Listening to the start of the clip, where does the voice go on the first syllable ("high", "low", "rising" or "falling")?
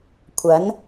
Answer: rising